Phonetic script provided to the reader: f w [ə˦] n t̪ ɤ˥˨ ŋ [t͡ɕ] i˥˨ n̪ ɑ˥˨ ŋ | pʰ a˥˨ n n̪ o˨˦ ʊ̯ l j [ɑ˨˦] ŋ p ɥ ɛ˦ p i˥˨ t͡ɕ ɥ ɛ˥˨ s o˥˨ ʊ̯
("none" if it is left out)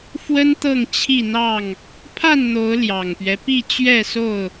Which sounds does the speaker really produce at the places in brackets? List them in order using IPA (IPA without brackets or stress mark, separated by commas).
ə˦, t͡ɕʰ, ɑ˨˩